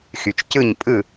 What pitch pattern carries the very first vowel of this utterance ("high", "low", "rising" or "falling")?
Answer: low